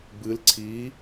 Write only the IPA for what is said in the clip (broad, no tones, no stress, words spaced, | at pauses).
bɨl ǀʰi